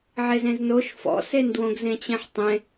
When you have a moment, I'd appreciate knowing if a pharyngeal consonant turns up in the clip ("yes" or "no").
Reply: yes